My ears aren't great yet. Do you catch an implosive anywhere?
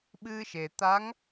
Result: yes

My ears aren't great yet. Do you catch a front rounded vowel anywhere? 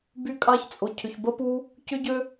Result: yes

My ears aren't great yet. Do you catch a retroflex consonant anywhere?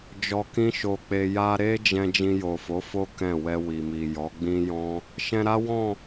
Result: no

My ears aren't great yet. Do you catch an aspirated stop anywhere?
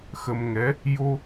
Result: no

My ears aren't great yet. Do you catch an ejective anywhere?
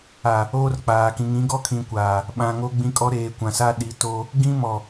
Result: yes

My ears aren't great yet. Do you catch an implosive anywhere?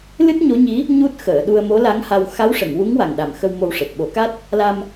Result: yes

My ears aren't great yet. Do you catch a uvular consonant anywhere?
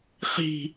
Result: yes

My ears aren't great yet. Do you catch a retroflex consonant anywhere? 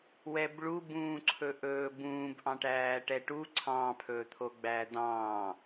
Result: yes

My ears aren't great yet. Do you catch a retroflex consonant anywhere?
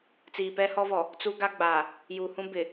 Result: no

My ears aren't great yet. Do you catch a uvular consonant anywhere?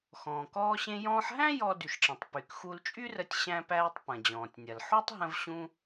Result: no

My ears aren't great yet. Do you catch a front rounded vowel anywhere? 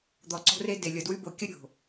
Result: yes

